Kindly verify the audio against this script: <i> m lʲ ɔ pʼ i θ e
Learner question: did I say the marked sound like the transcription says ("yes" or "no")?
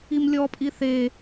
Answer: yes